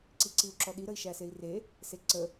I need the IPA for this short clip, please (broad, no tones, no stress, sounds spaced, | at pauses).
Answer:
ǀ i ǀ i u̯ ǁ ɔ ɗ i ɾ ə i̯ ʃ æ s e i̯ r e | s e ǀ ə